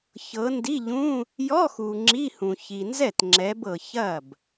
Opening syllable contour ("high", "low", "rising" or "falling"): rising